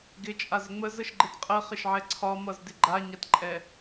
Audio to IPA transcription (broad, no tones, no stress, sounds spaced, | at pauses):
ɡ ɪ t͡ʃʼ a z ə ŋ͡m ə z ə ʃ ɡ͡ǃ ɪ t qʼ ə χ ɪ ʃ ʕ ɛ ǀʰ ɒ m ʌ z d ɪ ɡ͡ǃ a ɲ a t ǃʼ ɛ